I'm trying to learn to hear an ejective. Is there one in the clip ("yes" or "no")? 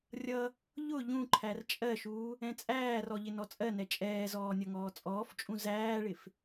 yes